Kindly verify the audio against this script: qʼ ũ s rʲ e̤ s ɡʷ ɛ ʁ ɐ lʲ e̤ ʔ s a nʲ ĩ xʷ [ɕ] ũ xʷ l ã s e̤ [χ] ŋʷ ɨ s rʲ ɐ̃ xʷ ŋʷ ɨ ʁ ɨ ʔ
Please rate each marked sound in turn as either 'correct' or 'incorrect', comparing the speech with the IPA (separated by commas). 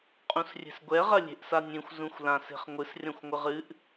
incorrect, correct